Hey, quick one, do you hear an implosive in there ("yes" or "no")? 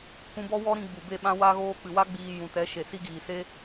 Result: yes